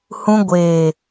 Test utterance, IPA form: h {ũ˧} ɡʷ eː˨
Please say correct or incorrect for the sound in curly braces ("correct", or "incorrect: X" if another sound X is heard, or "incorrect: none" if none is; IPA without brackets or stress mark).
correct